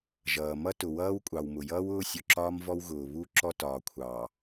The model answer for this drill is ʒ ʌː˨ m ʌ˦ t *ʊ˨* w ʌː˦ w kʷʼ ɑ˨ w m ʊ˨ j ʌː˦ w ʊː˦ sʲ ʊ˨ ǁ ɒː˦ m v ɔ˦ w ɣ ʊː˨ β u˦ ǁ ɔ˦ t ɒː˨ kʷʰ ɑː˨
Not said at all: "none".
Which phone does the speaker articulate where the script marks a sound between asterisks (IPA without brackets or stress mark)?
ʊ˨